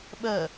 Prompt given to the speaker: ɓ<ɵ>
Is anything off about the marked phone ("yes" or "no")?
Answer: yes